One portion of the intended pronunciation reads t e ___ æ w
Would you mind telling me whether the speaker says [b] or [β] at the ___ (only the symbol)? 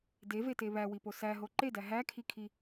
β